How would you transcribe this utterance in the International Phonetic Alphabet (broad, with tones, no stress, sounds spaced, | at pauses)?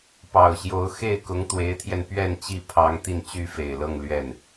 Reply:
p ɑ˨˩ ʊ̯ ɕ j o˧˥ ʊ̯ x e˥˩ ɪ̯ k ʊ˧˥ ŋ t̪ w e˧˥ ɪ̯ t̪ʰ j ɛ˧ n p ɥ ɛ˥˧ n t͡ɕ i˥˩ pʰ ɑ˥ ŋ t̪ i˥˩ n t͡ɕ y˥ f e˨˩ ɪ̯ l ɤ˥˧ ŋ l ɥ ɛ˥˩ n